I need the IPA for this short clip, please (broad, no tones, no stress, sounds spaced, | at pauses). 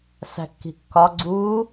s æ̤ kː i̤ kː ɒ ɡ͡ǀ u